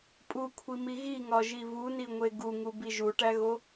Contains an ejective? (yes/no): yes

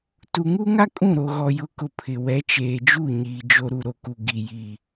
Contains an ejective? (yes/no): yes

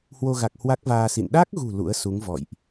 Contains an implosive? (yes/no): yes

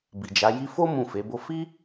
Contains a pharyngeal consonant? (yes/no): no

